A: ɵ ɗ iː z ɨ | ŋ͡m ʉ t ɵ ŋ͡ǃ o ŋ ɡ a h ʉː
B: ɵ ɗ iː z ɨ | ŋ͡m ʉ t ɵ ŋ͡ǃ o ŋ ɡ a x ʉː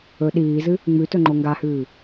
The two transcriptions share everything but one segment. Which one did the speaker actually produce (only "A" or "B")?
A